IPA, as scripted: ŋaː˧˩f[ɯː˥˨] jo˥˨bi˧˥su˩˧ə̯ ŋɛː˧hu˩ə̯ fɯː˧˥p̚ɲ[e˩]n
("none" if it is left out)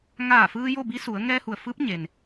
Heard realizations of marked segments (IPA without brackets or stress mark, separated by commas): ɯː˧, e˩